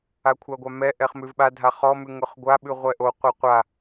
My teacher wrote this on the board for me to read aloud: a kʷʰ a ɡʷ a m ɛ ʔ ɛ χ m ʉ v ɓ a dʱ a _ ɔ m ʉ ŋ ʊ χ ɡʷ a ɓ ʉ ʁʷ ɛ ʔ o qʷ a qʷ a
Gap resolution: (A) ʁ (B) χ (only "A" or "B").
B